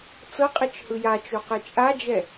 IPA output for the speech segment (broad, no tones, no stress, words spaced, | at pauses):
t͡sɤqʼit͡ʃhɯ jat͡ʃoqe t͡ʃʼad͡ʒɛ